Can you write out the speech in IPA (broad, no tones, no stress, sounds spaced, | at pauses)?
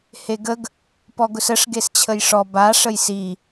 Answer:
h e ɡ ə ɡ | p ɔ ɡ ʊ s ə ʂ ɡ e s t͡ɕʰ ə j ʂ ɔ b a ʂ ə j s i